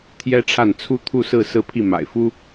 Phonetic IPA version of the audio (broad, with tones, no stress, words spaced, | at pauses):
t̪ʰjɛ˥ʈ͡ʂʰa˥˩n t͡sʰu˥t̪ʰu˥˧sɹ̩˥˧ sɹ̩˥˧pʰi˥˩ ma̰˨˩ɪ̯fu˥